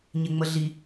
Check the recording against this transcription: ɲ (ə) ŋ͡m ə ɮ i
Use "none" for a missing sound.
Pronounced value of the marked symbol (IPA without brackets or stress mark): ɪ